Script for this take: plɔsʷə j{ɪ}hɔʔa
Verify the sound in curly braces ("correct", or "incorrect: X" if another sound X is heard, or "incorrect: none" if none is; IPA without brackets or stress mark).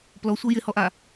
correct